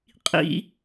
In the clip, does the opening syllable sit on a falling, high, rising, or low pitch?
high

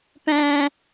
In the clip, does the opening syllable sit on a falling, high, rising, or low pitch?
high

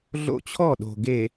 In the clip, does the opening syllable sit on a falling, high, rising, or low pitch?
high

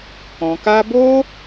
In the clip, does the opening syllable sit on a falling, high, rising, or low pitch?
low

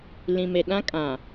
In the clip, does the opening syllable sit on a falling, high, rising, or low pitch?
low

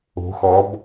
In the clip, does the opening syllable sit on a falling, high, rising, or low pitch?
rising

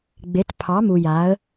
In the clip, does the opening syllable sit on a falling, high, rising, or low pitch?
rising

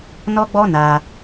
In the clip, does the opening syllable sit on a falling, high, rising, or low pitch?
high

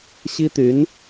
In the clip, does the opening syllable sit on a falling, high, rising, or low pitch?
high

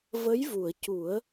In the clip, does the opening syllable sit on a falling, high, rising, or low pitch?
rising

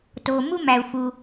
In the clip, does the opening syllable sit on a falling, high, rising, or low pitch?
low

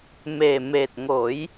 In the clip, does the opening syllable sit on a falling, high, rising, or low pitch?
low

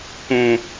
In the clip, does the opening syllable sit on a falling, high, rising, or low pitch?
high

